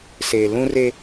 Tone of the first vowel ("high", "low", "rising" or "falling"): low